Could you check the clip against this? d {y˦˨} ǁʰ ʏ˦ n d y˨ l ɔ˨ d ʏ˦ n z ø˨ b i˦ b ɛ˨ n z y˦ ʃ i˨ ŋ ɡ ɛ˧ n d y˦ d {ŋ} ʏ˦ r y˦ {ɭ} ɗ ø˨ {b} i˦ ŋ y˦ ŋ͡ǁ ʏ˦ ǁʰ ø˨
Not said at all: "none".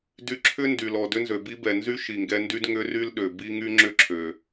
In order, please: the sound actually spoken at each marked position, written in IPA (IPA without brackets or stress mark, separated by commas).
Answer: y˧, ŋ, l, b